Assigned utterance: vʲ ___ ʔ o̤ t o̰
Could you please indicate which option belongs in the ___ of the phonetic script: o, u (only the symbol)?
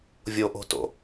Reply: o